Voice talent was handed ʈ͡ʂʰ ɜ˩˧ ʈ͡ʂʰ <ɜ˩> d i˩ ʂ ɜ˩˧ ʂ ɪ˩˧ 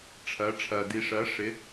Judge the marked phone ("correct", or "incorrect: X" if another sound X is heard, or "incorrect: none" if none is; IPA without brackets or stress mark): correct